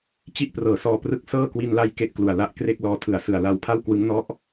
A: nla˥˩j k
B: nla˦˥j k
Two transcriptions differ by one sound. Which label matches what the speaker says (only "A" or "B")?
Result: B